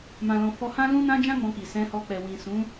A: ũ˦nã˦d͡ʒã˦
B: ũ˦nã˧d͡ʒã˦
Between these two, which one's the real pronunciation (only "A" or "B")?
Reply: A